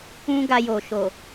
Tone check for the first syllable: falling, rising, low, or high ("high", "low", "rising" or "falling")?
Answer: high